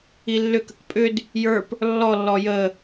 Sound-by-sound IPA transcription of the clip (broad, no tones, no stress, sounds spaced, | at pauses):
i lː ʏ k ə k pʼ ʏ d | j ə˞ p | lː ɔ lː ɔ j ə